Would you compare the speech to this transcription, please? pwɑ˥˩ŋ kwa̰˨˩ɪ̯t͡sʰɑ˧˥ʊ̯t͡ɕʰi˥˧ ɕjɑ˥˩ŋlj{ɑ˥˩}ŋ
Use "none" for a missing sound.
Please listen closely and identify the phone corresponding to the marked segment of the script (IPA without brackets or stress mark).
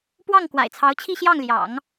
ɑ̰˨˩˦